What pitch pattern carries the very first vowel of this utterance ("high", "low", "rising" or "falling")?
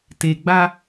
low